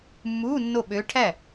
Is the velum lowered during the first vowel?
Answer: no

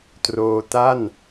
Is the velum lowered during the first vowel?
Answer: no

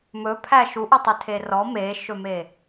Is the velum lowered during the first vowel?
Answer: no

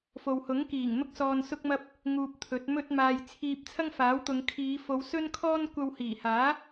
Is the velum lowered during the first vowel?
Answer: no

